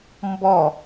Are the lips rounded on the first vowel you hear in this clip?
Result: yes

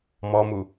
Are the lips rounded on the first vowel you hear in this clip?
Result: yes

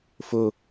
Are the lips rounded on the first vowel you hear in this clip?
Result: yes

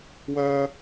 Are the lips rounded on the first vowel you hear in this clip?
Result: yes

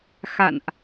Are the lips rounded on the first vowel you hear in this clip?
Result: no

